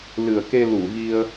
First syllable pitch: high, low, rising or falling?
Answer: low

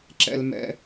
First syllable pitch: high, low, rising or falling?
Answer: high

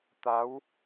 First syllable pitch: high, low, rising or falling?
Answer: rising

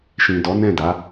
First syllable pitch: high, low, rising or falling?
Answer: low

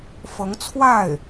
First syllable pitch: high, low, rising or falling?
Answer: rising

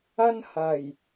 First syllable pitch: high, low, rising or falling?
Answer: high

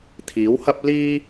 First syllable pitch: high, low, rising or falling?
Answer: rising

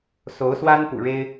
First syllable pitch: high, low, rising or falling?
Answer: rising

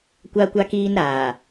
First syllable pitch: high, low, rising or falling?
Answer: high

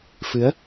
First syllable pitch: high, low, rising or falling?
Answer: rising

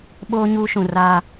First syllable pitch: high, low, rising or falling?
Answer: high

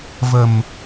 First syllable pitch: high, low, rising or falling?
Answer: low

